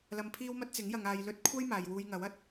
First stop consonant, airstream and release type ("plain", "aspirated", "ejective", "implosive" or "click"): aspirated